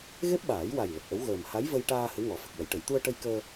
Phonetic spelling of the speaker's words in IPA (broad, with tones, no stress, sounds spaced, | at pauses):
ɣ e˦˥ p̚ ɓ aː˨˩˦ j w a˨˩ j l ə˨˩ k̚ ʔ ə˧˥ w ɣ əː˨˩ m h a˧˥ j v ə˧ j ʈ aː˧ h ɨ˧˥ ŋ ɔ˨˩˦ f ə˨˩ k̚ w ə˨˩˨ j ʈ ə˨˩˨ j t̪ u˧ ə̯ ʈ ə˧ j k əː˧